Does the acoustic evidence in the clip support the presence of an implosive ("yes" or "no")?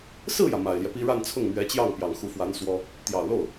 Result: no